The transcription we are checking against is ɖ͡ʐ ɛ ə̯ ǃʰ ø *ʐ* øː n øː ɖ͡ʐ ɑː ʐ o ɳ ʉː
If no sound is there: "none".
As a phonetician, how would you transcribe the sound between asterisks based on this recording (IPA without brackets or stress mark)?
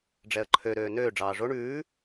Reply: ɾ